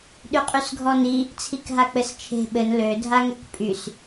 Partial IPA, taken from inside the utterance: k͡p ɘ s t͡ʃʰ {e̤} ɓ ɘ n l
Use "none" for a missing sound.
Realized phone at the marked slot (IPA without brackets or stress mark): e̤